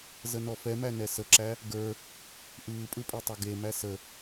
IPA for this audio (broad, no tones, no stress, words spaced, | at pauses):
zənɔfɛmæ nɛsəǁæ | ɡə˞ | ʔɯːpʼɯ pʼetˤɐɡemæ sə